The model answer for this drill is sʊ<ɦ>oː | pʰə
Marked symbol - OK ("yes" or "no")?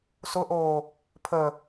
no